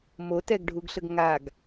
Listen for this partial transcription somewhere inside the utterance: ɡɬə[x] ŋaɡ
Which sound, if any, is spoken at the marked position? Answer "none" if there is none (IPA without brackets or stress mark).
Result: ɡ